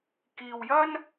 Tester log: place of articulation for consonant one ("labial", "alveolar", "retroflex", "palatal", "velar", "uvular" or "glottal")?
velar